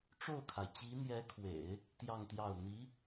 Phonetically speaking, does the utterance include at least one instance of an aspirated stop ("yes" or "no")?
yes